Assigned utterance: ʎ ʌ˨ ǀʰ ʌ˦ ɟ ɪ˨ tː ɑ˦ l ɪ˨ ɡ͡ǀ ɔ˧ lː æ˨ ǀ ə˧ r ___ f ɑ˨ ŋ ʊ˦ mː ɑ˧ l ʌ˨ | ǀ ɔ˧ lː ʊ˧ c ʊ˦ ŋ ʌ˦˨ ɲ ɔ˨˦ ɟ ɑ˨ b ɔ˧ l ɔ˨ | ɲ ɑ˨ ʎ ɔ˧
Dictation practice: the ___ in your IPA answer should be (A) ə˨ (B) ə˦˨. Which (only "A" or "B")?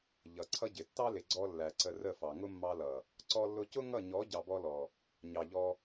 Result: B